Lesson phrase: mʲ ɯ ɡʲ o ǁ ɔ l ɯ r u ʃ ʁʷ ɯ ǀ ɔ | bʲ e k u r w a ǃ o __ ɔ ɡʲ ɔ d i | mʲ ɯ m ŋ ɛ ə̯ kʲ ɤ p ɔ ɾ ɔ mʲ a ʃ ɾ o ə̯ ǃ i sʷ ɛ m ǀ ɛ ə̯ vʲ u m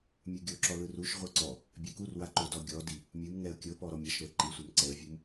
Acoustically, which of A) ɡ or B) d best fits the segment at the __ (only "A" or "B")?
B